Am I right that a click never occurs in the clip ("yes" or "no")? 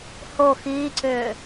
no